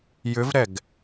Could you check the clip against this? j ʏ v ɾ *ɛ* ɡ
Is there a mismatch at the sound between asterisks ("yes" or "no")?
no